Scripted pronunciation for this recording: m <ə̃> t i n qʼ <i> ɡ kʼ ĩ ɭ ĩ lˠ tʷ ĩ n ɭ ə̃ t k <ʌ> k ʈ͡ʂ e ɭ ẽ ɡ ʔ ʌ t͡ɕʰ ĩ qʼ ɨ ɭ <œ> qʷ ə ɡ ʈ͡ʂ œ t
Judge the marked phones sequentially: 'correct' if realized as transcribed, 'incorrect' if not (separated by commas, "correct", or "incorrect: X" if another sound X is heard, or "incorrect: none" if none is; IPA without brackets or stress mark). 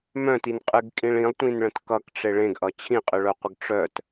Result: incorrect: œ̃, incorrect: ɨ, correct, correct